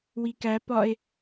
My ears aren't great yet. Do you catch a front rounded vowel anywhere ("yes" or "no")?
no